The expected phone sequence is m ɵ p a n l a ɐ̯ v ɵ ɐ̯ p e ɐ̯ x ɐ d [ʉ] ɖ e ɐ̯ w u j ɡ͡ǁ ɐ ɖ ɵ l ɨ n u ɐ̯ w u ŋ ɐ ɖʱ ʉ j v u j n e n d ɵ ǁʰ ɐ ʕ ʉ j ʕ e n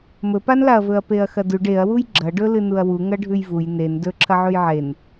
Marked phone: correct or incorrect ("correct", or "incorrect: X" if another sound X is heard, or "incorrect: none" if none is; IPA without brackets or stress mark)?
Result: correct